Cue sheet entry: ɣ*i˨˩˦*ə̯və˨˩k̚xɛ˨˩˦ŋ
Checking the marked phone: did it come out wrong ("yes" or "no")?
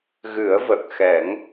yes